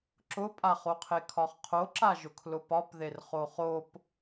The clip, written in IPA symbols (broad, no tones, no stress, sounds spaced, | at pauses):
ǁ ʊ pʼ a χ o qʰ e kʰ ɒ χ qʰ o ǁ a ʒ ʊ kʰ l ʊ p ɒ p ð e r χ o χ o p